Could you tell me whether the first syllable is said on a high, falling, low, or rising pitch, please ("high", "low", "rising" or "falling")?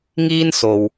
high